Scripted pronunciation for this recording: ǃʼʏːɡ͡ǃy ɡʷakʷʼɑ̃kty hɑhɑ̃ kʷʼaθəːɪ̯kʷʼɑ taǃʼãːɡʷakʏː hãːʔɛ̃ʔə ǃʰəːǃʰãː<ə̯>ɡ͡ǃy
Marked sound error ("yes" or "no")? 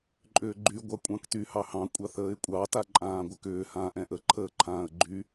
no